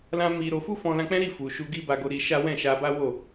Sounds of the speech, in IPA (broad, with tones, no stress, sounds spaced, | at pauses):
l ã˧ m i˧ ɾ o˧ f u˦ f ɔ̃˧ l ã˧ k͡p ɛ̃˦ ɾ i˦˨ f u˨ ʃ u˧ ɡ i˦ b a˧ ɡ o˧ ɾ i˧ ʃ a˦ w ɛ̃˦˨ ʃ a˧ b a˦ w o˦˨